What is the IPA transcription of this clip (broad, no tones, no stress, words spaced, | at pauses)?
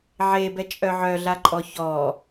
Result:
ʕebɛ t͡ʃʼœʕœɮaǃʼɔ çɔ